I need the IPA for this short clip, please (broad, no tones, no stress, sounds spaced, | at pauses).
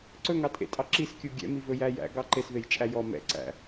ǀ ɵ ŋ ɑ tʼ ḛ tʼ ɑ ǁ i s kʲ u ɡʲ ɛ̰ m i v ɵ j æ j æ̰ ɡ ɑ ǃ e s v e j t͡ʃʼ æ j ɔ m ɛ̰ ǀ æ̰